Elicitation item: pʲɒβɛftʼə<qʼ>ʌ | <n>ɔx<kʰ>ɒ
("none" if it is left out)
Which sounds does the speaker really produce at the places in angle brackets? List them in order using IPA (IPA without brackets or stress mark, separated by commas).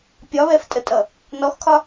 tʼ, n, kʰ